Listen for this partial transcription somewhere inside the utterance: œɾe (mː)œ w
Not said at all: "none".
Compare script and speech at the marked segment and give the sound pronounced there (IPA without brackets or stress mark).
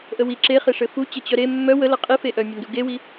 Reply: mː